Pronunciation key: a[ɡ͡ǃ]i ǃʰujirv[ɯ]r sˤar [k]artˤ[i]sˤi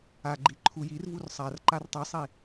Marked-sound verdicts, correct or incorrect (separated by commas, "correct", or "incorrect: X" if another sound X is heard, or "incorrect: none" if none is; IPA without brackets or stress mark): correct, incorrect: u, incorrect: ǃ, correct